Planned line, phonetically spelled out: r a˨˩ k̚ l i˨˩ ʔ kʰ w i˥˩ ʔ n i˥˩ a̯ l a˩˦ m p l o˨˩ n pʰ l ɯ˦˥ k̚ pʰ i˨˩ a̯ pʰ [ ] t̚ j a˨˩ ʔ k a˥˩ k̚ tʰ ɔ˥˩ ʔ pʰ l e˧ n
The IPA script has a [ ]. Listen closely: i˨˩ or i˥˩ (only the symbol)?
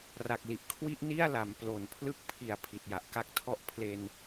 i˨˩